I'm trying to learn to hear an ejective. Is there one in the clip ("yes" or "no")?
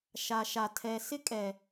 yes